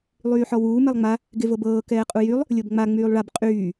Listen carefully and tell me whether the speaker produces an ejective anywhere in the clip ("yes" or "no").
yes